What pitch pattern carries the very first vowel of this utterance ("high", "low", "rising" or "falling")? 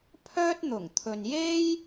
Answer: high